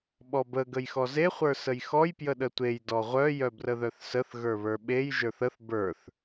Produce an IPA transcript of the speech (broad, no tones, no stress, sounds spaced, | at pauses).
ɓ ɔ b ə ɡ ə j x ɔ z e χʷ ə˞ s ə j x ɔ j p j ə ɗ ə tʷ e j d ɔ ʁʷ œ j œ b r ə ð œ θ s ə θ ɣ ə˞ β ə˞ ɓ e j ʒ ə˞ θ ə θ b ə˞ θ